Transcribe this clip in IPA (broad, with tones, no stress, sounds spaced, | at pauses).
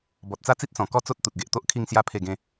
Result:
b ɔ˨ t̚ t͡s a˦ t͡s i˦ t̚ s ɔ̃˨˩ k ɔ˥˧ t͡s o˦ t̚ t̪ u˨ t̚ ɡ e˨ ʔ t̪ o˦ ʔ kʰ i˥˧ ŋ s j a˥˧ pʰ e˥˧ ɡ ẽ˦